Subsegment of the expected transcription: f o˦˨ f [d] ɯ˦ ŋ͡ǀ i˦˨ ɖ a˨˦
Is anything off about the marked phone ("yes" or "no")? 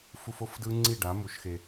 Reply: no